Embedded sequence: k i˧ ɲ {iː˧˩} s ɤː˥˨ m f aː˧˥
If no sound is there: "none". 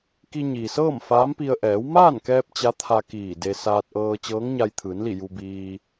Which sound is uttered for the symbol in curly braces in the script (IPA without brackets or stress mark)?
iː˩